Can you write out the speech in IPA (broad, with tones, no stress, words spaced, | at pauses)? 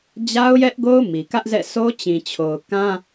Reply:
d͡ʑa˦ʊ̯jɛ˦ʔɡo˦ʊ̯ mi˨kä˦ʔzɛ̰˦˨sʰo˦ t͡ɕĩ˨t͡ɕʰo˨ʊ̯kã˦